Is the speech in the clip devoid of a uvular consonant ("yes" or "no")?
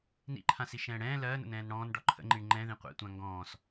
no